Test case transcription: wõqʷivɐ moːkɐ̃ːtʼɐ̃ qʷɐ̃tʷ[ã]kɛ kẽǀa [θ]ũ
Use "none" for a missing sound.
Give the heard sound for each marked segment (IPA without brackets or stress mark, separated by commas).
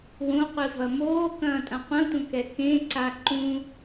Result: ɐ̃, ǃ